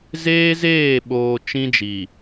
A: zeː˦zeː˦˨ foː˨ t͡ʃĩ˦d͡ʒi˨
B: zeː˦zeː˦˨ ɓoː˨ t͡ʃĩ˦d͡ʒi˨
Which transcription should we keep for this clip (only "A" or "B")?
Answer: B